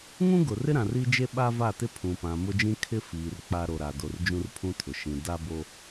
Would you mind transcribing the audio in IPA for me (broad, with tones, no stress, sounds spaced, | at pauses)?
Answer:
ŋ ũ˦ ɡ ʊ˨ r ɪ˦ ɾ ã˨ r i˦ d͡ʒ e˦ ɓ a˦ v a˦˨ t ɪ˦ pʰ ũ˨ p ã˨ m ʊ˦ d͡ʒ ĩ˦ kʰ ɪ˦ f iː˨ r k͡p a˦ ɾ o˨ ɾ a˨ d o˨ r d͡ʒ ũ˦ r pʰ ũ˦ tʰ ʊ˨ ʃ ĩ˨ d a˦ b o˦